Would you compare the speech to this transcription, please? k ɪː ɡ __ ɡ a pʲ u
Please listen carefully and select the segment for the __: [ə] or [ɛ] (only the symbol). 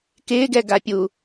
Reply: ɛ